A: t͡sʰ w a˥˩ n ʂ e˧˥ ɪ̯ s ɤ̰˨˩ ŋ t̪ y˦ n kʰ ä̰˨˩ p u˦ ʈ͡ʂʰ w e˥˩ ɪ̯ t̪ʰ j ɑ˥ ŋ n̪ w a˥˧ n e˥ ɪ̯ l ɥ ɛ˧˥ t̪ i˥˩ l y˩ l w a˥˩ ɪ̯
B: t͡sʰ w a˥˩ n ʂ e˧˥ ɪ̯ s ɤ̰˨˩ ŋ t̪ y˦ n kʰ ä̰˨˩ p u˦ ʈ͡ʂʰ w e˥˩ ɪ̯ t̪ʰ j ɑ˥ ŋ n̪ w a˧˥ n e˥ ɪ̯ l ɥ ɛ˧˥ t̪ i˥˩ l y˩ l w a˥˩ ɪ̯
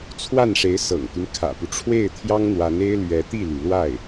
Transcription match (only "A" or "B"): B